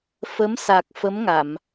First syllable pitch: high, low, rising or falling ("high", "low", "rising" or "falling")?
rising